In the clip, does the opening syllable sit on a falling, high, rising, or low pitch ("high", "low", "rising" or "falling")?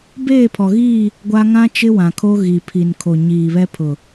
falling